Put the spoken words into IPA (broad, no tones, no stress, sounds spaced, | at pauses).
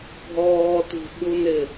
bʱ ɔː t ṳ ɓ u n ɪ